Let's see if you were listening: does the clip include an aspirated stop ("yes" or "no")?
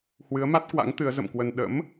no